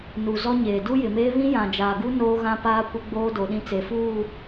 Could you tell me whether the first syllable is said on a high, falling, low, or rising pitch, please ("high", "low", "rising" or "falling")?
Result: low